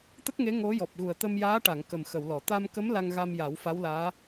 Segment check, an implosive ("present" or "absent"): absent